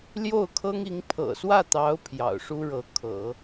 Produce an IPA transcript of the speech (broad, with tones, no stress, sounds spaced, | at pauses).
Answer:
l j o˥˩ ʊ̯ kʰ ɤ˥ ŋ i˧˥ ŋ pʰ ɤ̰˨˩ s w ä˥˩ t̪ ɑ˧˥ ʊ̯ pʰ j ɑ̰˨˩ ʊ̯ ʂ u˥ ɻ ɤ˧˥ kʰ ɤ̰˨˩˦